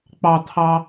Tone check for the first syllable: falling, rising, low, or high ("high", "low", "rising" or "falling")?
high